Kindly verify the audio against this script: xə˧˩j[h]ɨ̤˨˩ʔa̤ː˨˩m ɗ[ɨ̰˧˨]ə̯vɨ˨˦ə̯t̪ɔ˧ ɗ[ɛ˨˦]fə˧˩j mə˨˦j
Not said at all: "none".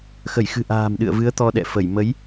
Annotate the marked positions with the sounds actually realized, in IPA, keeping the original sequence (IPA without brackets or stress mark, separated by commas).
x, ɨ̰˧˨, ɛ̰˧˨